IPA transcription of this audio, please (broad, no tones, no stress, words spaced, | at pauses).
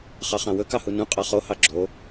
χɑχɑ̃wɵ kɑhunũ qʼɑχo hɑɡ͡ǁo